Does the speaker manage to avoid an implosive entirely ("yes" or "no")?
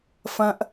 yes